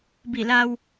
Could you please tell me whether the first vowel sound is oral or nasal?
oral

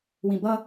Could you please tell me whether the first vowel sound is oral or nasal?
nasal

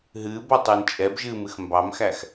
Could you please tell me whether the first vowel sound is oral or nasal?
oral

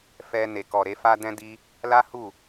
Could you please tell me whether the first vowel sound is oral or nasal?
oral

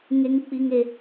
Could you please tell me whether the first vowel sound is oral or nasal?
oral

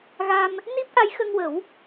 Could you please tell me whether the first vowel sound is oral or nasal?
oral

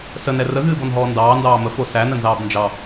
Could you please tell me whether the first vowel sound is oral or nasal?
oral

